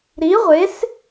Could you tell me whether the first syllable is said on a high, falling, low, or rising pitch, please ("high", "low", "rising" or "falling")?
rising